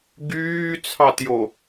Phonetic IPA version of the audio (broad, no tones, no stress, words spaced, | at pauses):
ɡyːt͡sʰɑtjo